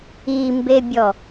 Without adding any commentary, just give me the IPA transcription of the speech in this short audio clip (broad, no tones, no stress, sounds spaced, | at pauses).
i m b e bʲ ɔ